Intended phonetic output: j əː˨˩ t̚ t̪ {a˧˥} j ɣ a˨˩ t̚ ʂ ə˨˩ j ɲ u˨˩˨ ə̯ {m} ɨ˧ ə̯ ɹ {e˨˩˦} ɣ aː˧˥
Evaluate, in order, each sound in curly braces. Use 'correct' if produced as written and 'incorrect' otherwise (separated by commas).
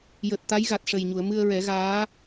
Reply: correct, correct, incorrect